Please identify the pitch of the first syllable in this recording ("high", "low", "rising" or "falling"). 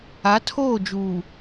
rising